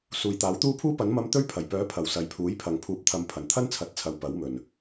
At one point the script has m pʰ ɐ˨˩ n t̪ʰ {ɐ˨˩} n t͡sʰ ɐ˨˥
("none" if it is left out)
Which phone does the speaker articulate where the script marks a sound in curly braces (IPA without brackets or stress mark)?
ɐ˥